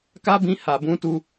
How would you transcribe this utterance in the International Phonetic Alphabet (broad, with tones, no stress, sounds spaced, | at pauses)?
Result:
k a˦ b ĩ˧ h a˨ b ũ˧ t u˧